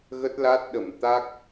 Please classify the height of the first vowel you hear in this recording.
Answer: mid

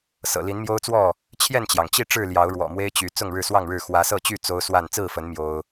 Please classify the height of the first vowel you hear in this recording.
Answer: mid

